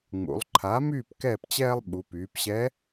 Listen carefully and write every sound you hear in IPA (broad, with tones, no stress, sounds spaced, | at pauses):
ŋ͡m ṵ˩˧ lˠ ǃʰ a˩˥ m yː˥˨ p k ɛː˥˨ p t͡ɕ ɛː˥ lˠ ɓ u˩˧ p yː˩˧ p ɕ ɛ˧˥